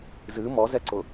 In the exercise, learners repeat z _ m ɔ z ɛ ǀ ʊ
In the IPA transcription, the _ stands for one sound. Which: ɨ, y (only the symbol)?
ɨ